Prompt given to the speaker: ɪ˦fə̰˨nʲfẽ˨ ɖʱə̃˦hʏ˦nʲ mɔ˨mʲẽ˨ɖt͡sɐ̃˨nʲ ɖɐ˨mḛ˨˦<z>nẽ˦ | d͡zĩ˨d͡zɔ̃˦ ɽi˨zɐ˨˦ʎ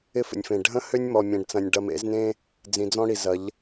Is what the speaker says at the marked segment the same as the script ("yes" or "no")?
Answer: yes